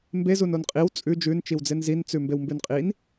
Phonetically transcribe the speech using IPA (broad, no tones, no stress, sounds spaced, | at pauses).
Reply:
m b e z u n o n qʼ i w t͡sʼ ʉ d͡ʒ ʉ n t͡ʃ i w d͡z e n z i n t͡s ʉ m b e w m b ʉ n qʼ i n